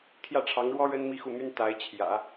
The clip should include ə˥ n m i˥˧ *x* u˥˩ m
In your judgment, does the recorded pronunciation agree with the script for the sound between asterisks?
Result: yes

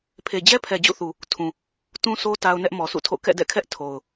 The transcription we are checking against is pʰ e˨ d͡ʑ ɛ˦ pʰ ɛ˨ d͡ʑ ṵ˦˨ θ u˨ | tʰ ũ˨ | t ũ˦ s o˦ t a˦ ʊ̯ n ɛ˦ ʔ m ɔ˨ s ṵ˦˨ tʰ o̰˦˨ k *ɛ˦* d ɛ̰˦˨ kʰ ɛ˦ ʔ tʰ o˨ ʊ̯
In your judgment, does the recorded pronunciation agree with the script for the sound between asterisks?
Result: no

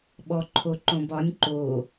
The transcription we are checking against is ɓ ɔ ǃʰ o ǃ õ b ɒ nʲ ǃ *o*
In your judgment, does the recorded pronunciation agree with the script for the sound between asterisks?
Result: yes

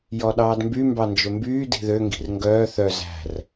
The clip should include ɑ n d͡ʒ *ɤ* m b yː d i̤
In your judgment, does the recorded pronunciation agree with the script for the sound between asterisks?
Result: no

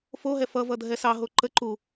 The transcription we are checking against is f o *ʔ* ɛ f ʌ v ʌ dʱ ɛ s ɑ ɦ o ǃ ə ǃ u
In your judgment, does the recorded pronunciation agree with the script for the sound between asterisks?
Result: no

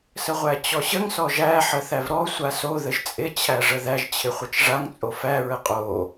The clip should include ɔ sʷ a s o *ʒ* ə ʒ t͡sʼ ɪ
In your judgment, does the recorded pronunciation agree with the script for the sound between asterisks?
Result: no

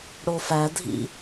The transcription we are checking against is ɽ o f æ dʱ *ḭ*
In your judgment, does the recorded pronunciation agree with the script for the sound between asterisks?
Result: yes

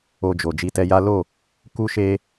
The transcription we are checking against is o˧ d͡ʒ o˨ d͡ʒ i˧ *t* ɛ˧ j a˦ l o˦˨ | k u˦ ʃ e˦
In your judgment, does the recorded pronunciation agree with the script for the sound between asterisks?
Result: yes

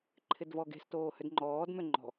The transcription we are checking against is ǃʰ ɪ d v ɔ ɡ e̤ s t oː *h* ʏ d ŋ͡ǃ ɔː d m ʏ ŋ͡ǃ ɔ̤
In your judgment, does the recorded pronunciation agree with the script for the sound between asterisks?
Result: yes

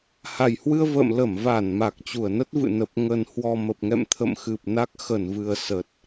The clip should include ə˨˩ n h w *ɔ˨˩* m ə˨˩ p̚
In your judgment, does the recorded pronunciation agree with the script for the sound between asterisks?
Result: yes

